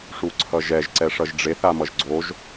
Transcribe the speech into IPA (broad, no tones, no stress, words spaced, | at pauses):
ʂuǀʰʌʒɛʒ ǀɛʂʌʒɖ͡ʐeθ amʌʒɡ͡ǀoʒ